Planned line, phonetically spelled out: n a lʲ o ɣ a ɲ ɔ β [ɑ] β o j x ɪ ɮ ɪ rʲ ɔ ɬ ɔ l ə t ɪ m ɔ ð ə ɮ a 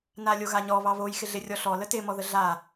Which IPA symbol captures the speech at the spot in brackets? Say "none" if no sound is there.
ɑ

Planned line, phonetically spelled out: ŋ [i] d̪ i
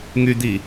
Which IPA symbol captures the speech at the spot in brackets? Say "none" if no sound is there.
y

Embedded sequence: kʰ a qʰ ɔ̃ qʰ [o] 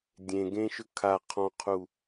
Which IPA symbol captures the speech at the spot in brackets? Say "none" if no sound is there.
u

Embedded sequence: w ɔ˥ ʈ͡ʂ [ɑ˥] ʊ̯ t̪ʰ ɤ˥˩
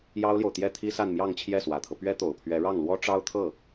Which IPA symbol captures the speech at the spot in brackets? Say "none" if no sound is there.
ɑ˥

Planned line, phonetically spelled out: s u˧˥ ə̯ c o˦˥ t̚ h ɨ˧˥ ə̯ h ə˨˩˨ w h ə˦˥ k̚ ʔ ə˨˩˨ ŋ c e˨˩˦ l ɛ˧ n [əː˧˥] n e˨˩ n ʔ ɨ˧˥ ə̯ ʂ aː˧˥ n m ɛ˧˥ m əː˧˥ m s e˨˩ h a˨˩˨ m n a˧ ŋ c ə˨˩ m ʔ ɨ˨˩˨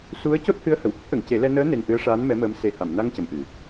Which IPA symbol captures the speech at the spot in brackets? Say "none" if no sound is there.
əː˧˥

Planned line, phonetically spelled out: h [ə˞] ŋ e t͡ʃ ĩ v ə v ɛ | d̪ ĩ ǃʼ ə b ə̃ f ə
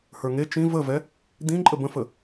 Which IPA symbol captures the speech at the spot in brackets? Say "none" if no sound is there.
ə˞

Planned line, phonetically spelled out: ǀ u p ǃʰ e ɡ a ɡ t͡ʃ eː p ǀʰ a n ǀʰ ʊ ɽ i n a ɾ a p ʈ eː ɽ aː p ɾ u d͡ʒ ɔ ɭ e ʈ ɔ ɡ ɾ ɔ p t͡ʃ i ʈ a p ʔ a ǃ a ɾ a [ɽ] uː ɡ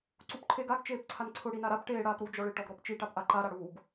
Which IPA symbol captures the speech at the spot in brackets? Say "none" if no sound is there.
ɽ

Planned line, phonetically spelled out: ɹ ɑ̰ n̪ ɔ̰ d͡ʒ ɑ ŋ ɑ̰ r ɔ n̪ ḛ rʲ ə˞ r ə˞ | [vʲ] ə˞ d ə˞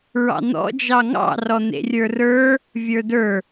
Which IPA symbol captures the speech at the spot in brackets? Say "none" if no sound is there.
vʲ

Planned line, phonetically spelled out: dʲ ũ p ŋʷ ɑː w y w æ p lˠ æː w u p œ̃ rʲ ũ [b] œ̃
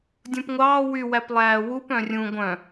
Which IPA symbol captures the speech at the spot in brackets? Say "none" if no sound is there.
ɡʷ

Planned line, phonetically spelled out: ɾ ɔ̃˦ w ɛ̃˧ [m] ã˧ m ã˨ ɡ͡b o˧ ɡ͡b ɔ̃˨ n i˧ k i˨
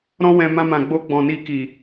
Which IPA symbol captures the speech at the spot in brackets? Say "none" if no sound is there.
m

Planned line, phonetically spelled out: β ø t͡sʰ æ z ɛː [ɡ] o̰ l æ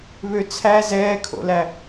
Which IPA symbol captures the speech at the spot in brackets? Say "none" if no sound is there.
kʰ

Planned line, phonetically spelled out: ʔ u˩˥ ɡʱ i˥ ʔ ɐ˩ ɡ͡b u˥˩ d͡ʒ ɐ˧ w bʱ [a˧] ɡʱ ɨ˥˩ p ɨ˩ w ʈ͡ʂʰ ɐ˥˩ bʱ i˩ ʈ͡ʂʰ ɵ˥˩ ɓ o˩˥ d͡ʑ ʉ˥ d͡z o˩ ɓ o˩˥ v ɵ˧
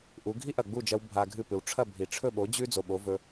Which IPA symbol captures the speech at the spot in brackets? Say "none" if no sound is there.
a˧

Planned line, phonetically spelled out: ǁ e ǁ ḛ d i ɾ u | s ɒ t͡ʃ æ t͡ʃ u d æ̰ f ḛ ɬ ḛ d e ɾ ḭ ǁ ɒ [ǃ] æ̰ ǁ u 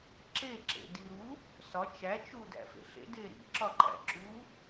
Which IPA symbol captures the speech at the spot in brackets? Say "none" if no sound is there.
ǃ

